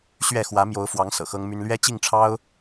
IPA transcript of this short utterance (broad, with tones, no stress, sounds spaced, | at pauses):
ɕ ɥ ɛ˥˨ x w ä˨˦ m j o˨˦ ʊ̯ f w ɑ˨˦ ŋ s ɤ̰˨˩ x ɤ˦ ŋ m y˦ n l ɥ ɛ˦ t͡ɕ i˥˨ ŋ ʈ͡ʂʰ ɑ˦ ʊ̯